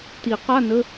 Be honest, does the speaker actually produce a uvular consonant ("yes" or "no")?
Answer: yes